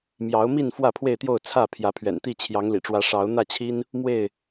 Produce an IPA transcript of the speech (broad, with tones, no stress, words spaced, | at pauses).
mjɑ˨˦ʊ̯mi˥˨n fwä˥˨pʰwe˥˨ɪ̯t̪jo˥˨ʊ̯ t͡sʰä˥˨ pʰjä˨˦pʰɥɛ̰˨˩nt̪i˥˨ t͡ɕʰjɑ˨˦ŋlḭ˨˩ʈ͡ʂwä˨˦ ʂɑ˨˦ʊ̯ n̪ä˥˨t͡ɕʰi˦n | mwe˥˨ɪ̯